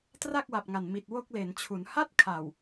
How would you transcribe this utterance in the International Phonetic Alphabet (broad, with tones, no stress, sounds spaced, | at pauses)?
t r a˥˩ k̚ w a˨˩ p̚ ŋ a˨˩ n m i˨˩ t̚ w o˥˩ k̚ l e˩˦ n t͡ɕʰ u˩˦ n h a˥˩ t̚ kʰ a˨˩ w